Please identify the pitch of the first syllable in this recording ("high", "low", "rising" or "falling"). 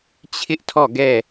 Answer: high